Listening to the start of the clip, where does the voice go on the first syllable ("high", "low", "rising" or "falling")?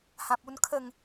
low